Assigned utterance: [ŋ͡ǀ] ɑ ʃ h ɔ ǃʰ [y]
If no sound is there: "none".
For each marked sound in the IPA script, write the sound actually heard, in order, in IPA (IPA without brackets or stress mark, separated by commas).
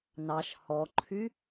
n, y